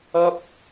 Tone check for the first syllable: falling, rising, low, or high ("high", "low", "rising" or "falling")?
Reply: high